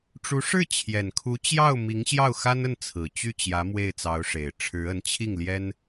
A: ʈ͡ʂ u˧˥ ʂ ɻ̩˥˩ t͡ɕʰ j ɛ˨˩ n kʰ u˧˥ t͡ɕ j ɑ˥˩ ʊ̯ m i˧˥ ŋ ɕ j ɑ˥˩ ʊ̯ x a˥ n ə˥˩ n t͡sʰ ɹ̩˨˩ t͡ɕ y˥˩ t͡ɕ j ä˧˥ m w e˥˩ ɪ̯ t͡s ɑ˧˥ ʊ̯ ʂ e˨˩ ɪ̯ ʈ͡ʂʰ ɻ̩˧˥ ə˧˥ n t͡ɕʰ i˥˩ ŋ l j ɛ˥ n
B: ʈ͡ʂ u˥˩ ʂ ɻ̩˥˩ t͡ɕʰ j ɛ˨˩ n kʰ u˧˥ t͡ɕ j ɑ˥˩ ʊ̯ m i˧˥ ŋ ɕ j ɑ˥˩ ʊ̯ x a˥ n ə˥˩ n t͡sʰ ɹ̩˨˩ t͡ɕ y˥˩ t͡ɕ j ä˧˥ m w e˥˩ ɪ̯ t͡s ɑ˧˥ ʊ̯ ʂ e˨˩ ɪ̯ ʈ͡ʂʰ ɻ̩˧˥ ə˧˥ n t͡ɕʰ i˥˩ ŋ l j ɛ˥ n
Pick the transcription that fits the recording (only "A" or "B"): A